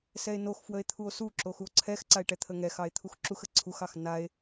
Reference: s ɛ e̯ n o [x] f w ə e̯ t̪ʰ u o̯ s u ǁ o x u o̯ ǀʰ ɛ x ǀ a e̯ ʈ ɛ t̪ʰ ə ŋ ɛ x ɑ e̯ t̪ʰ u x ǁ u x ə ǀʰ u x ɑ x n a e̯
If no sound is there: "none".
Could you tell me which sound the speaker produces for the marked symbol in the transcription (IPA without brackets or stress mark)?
x